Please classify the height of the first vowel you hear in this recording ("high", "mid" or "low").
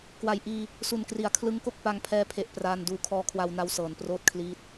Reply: low